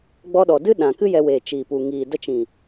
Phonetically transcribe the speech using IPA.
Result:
ɡ͡b ɔ˧ ɗ ɔ˨ d ɨ˦ ɗ ã˨ k ɨ˦ j ɛ˧ w eː˨ t͡ʃ iː˨ p u˨ ŋ iː˨ d ə˧ t͡ʃ ĩ˨

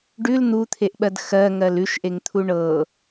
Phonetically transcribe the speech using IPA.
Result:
ɖ ʉ l n̪ u t̪ʰ e ʔ ɓ ɜ d x ɜ ŋ ɜ l ʉ ʃ ʔ e ŋ t̪ʰ u ɳ ɤ

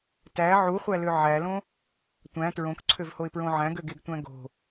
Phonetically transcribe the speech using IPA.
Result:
t æ ʕ u χʷ æ l ø ʕ æ l õ | tʷ æ̃ t ɹ õ k ǀʰ ø v h o ɪ̯ p ɹ õ ʕ æ̃ ɡ ø ɡ e ɡ tʷ æ̃ ɡ o̤

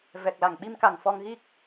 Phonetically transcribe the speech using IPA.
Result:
v ɛ˨˩ k̚ l a˨˩ ŋ ɓ i˧ m k a˨˩ ŋ f ɔ˧ ŋ ɣ i˦˥ k̚

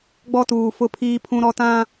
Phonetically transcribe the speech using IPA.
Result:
ɡ͡b ɔ˦ t uː˨ f ʊ˦ pʰ iː˦ pʰ ũ˦ ɾ ɔ˦ t ã˦

